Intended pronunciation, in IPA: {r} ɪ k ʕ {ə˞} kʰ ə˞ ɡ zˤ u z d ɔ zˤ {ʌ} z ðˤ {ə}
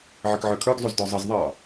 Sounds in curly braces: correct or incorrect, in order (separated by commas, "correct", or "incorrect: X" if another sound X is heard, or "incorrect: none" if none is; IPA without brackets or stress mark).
incorrect: ʕ, correct, correct, incorrect: ɑ